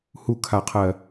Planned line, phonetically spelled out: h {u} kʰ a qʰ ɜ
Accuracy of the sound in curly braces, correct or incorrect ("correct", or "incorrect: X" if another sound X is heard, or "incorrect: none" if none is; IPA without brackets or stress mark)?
correct